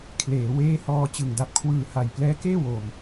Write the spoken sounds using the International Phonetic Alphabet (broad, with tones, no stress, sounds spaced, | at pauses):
kʰ l eː˩˦ w eː˦˥ h ɔː˧ t͡ɕ ɯ˨˩ ŋ d a˨˩ p̚ kʰ w ɯː˨˩ h a˨˩ j p l ɛː˦˥ k eː˥˩ w o˨˩ m